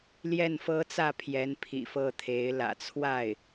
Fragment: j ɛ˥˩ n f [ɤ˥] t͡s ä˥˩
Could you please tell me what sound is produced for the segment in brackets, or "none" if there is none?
ɤ˥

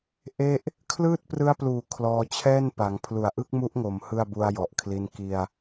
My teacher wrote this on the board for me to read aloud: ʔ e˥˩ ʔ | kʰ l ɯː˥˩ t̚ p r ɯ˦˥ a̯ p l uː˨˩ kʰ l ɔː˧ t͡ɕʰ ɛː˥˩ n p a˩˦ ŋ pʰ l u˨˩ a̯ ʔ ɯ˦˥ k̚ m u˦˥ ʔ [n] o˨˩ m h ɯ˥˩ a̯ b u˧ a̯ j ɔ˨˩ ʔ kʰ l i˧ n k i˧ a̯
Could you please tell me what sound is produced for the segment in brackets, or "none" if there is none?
ŋ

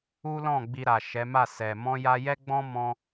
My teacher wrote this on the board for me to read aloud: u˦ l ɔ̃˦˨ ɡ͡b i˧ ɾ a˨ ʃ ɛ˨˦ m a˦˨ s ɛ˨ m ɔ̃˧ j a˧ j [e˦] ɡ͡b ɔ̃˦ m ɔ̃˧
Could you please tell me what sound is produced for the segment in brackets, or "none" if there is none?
ɛ˦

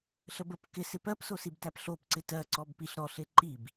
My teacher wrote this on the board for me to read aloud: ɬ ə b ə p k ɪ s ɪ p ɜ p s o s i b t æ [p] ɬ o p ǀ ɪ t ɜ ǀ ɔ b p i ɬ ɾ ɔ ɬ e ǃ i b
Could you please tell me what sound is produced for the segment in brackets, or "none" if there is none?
p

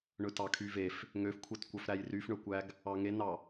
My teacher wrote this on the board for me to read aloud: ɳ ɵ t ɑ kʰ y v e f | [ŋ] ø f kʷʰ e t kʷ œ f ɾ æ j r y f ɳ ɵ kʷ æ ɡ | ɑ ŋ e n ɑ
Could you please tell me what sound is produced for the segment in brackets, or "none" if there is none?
ŋ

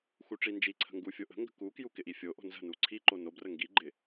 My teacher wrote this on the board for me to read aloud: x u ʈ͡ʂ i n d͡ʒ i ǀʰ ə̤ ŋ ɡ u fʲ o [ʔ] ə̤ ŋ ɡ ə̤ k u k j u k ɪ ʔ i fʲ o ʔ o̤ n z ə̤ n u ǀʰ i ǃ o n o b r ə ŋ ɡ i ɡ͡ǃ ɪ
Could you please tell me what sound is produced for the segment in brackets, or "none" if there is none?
ʔ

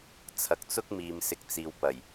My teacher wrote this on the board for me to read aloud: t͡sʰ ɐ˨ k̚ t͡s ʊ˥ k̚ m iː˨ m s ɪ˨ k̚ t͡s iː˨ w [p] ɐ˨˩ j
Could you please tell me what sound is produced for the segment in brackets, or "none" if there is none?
p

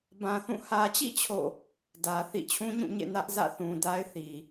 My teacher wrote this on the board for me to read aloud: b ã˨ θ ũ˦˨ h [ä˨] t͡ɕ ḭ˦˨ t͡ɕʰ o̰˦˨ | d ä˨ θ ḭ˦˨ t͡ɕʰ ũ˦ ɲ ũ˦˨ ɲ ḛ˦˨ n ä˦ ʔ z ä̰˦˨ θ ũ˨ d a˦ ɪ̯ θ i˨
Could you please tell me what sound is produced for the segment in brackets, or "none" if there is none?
ä˨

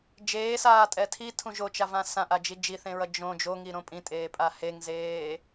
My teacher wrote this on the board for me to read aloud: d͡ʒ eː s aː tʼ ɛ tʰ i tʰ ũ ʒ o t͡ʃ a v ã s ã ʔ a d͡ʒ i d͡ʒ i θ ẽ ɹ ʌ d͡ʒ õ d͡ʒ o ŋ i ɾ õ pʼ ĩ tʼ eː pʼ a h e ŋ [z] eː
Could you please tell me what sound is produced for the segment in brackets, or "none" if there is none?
z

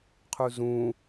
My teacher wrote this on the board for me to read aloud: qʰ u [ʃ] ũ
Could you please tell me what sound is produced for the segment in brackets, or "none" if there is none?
z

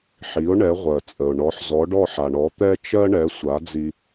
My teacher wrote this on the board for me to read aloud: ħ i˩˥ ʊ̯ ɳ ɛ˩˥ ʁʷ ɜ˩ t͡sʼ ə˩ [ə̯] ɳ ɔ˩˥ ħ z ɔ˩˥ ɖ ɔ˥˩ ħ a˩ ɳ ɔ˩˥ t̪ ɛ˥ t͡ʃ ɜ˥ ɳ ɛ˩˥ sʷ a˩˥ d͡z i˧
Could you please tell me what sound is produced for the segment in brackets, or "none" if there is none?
ʊ̯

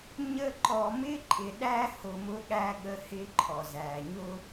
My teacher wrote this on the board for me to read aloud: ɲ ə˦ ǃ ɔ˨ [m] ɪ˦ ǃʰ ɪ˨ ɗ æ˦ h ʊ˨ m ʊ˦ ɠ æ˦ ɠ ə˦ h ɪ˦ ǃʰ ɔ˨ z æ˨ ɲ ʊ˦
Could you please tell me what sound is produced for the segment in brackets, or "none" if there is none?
m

